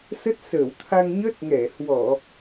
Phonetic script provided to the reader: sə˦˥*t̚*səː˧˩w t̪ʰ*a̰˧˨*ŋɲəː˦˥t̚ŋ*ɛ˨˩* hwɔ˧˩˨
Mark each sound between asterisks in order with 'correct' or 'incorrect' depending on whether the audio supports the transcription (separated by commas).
correct, incorrect, incorrect